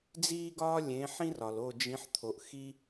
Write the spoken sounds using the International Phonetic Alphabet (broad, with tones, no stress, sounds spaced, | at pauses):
d͡z iː˥ ɡ ɒː˥ lʲ ẽ˨˥ ħ ĩ˥ r ɒ˨ l o˦˨ d͡ʒ ĩ˨˥ ħ t̪ʰ o˨ ʔ x i˥